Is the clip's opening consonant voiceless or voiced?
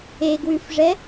voiced